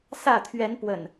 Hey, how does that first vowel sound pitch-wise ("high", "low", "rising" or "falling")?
falling